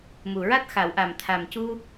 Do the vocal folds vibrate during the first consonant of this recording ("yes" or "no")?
yes